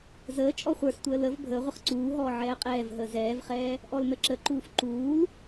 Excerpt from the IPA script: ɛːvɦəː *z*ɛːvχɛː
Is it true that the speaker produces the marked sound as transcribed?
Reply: yes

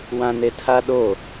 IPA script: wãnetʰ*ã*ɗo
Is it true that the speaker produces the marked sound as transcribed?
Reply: no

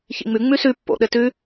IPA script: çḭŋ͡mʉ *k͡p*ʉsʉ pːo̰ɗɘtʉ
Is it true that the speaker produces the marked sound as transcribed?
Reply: no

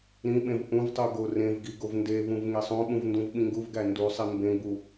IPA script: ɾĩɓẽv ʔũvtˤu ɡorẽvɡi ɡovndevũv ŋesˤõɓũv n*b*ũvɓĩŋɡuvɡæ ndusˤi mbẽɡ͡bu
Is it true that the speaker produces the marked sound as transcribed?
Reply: no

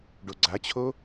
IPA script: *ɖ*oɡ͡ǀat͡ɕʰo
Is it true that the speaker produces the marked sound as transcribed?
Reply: yes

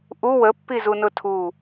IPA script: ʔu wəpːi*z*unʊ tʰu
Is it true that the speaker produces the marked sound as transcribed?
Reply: yes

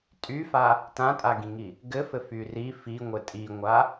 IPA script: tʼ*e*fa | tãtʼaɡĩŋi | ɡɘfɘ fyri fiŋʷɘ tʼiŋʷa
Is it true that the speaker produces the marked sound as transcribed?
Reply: no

